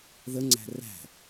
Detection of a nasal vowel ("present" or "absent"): absent